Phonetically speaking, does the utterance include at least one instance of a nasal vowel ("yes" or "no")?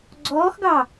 no